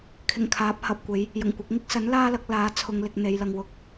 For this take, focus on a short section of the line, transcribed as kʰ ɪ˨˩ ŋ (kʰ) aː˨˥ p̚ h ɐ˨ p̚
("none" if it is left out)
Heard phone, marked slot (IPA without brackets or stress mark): kʰ